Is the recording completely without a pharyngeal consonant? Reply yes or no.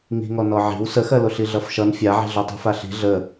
no